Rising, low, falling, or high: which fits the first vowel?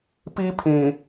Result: high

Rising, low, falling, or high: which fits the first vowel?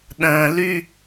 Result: low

